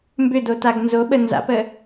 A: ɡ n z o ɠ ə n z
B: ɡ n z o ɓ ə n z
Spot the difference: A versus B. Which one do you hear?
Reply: B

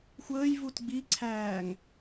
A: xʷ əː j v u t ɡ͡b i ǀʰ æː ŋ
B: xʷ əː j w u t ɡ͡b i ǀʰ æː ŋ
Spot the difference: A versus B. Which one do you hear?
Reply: A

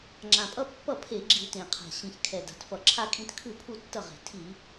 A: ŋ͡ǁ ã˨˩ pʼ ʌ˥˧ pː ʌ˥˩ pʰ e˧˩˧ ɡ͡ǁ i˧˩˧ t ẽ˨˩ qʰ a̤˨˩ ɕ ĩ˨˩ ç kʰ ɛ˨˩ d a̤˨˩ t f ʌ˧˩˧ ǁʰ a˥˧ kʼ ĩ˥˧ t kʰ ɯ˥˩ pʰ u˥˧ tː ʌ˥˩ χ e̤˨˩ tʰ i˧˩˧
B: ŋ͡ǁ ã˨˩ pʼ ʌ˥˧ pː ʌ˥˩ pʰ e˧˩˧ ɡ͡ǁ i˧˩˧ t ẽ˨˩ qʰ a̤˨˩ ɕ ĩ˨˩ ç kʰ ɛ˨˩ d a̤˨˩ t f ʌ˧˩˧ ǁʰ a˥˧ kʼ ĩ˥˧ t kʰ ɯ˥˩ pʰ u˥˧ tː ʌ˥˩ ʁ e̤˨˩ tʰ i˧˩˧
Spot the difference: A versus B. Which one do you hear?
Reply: B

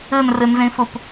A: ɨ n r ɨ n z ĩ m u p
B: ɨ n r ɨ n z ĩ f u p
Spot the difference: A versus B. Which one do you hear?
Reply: B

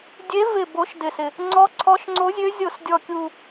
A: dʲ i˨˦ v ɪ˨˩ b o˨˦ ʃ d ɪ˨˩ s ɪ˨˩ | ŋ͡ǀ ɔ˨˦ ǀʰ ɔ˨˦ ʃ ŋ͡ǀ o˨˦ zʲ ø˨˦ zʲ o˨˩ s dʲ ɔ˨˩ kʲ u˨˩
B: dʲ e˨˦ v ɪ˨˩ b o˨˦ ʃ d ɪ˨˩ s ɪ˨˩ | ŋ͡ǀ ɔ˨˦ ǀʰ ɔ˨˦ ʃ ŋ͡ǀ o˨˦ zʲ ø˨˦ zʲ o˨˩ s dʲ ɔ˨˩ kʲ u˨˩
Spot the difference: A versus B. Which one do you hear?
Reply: B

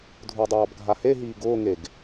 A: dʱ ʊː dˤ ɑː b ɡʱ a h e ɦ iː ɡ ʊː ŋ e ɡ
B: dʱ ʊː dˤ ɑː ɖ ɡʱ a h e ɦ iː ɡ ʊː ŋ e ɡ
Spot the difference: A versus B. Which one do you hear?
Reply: A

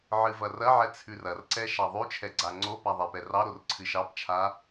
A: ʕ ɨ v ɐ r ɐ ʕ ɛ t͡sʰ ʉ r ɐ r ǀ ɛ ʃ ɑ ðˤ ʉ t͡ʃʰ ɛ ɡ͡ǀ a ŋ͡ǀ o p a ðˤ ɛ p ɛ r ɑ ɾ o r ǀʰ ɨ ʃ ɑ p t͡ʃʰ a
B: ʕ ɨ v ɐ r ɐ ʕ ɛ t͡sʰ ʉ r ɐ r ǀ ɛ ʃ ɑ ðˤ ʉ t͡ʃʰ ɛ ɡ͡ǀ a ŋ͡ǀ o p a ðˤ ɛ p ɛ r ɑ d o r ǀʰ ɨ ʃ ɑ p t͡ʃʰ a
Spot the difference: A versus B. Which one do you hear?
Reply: A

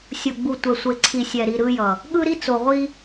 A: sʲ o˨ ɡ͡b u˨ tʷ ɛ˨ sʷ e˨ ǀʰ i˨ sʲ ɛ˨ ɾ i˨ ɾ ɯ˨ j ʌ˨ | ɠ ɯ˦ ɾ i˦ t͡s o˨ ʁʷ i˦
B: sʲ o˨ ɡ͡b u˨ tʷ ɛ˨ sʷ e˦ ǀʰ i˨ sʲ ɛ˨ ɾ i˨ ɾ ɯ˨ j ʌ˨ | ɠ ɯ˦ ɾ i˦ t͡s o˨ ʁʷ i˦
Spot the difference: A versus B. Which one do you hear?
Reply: A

